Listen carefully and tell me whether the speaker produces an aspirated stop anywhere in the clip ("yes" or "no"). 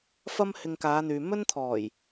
yes